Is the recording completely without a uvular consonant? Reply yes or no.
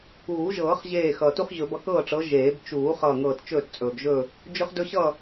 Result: no